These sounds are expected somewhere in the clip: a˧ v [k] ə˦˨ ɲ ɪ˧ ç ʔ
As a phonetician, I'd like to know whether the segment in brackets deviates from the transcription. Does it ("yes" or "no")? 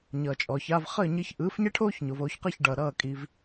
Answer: yes